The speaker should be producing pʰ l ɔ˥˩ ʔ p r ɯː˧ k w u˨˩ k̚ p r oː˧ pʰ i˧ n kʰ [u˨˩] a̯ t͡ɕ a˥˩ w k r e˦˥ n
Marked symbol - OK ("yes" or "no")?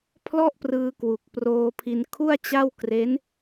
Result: no